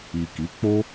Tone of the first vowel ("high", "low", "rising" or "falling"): low